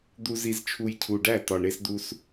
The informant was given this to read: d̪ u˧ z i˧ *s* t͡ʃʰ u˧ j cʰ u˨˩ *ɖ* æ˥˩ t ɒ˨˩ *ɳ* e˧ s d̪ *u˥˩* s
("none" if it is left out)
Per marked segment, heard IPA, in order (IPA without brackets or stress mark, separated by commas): z, ɖ, ɳ, u˧